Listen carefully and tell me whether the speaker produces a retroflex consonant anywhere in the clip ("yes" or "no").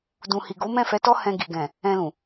no